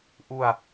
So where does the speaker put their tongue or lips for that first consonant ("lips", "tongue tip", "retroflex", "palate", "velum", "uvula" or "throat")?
throat